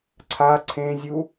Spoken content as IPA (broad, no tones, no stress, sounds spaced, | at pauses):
ǀʰ a ǀʰ ẽ zʲ u